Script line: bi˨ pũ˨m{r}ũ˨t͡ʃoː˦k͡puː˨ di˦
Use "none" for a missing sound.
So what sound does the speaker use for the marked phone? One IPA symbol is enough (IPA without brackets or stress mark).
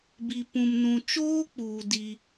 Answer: n